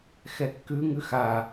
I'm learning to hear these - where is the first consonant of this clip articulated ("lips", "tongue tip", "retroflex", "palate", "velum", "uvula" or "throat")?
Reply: velum